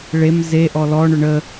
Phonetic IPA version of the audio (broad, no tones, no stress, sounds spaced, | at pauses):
ɭ e m z e ʔ ɔ l ɔ ɳ ʏ ɳ ə